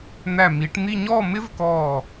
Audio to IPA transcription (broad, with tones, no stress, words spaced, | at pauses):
n̪æ˧˩mi˩˧ʈn̪i˥˧ ɲɔ˥˧mɪ˥vkɔː˧˩